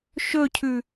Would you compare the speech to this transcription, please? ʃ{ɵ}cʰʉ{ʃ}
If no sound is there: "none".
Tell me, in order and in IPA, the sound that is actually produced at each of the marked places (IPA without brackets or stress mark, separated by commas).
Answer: ɵ, none